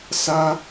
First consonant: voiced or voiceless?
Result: voiceless